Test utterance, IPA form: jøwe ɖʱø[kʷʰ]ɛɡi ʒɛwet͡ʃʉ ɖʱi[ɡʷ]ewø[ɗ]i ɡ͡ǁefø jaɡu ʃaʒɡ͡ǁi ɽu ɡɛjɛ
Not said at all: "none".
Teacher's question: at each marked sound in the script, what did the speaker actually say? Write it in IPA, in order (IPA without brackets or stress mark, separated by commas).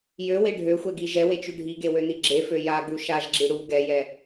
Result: xʷ, ɡ, n